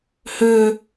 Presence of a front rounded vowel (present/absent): present